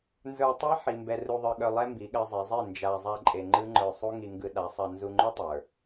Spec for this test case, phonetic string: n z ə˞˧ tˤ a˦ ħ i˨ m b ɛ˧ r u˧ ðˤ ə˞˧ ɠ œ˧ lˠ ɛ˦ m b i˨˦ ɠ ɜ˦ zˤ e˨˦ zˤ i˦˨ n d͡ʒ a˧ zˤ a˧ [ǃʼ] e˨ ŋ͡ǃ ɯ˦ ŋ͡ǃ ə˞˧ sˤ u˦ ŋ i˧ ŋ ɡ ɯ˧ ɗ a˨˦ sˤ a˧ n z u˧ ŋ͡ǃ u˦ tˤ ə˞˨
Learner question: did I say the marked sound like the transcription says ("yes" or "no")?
yes